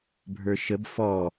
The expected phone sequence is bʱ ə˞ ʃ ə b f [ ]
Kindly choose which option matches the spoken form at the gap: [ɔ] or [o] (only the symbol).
ɔ